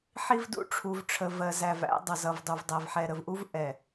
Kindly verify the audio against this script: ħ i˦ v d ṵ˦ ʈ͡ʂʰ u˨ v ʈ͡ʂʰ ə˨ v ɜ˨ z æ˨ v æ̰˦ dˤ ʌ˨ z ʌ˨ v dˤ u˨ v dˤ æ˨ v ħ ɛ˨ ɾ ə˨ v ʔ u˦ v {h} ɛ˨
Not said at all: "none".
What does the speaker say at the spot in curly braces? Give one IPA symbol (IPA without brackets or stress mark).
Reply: ʔ